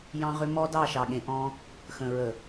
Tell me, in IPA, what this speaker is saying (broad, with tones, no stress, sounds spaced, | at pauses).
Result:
j ɑ̃˦ ʁ ʏ˦ m ɔ˦ d ɑ˦˨ ʃ ɑ˨ ɠ ẽ˨ ʔ ɔ̃˦ | x ə̃˨ ɹ ə˨